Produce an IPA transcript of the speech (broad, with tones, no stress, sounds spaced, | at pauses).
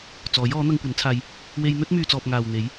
t͡s ɔː˨˥ j ɔː˨˥ n̪ ɐ˧ ŋ kʷ ɐ˨˥ n t͡sʰ aː˧ j | w e˧ j n̪ ɵ˥ t̚ m yː˨ t͡s ɔː˨ p̚ ŋ aː˨ w n̪ e˨˥ j